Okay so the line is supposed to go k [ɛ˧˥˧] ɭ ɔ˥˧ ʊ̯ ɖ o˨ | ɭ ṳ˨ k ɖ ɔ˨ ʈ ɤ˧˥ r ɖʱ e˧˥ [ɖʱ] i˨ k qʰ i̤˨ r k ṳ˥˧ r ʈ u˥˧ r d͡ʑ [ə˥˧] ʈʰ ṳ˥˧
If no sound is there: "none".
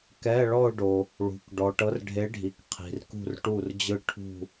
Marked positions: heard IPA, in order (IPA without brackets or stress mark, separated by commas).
ɛ˧˥˧, ɖʱ, ɯ˥˧